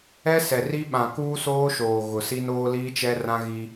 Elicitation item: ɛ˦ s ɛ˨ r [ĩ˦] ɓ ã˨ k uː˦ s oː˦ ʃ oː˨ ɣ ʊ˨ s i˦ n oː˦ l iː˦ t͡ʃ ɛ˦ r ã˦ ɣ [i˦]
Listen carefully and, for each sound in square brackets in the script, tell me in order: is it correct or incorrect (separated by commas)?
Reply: incorrect, correct